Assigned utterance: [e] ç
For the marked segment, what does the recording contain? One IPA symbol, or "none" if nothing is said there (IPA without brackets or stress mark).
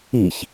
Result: i